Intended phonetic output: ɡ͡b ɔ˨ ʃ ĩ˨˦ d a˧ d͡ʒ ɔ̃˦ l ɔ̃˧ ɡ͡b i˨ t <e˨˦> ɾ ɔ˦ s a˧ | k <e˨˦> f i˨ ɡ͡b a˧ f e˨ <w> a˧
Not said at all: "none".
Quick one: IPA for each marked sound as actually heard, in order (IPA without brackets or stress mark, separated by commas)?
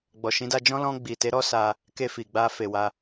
e˨˦, e˧, w